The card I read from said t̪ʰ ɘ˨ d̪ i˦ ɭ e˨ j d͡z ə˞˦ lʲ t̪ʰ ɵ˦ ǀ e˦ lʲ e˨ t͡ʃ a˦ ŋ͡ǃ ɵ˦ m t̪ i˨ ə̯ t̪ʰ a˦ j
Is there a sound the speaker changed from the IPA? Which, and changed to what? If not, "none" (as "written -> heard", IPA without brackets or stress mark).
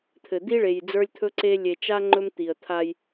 none